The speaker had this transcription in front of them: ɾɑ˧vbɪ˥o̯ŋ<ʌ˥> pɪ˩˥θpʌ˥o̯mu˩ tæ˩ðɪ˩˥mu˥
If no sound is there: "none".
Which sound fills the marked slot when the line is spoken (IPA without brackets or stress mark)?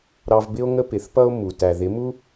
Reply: ə˥